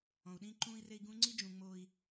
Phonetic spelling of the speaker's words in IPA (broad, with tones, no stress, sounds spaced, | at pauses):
ɔ̃˨ u̯ ɗ ĩː˦ ǃ ũː˦ i̯ r e˦ i̯ ɡ ũ˦ ŋ͡ǀ i˦ d͡ʒ ũ˨ ŋ͡m oː˦ i̯